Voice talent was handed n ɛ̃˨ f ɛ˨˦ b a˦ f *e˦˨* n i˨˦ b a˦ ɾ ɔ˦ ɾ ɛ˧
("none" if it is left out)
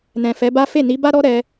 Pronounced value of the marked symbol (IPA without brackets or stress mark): e˦˨